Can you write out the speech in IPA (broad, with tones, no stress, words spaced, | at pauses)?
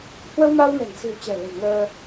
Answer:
hwə˧wma˧wnɛ̤˨˩ŋ si̤˨˩wt͡ɕɛ̤˨˩lə̤˨˩j ŋəː˧